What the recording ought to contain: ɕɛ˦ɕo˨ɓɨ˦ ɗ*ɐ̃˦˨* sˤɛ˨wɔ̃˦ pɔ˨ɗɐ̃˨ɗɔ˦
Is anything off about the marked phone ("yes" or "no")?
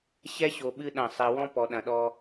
no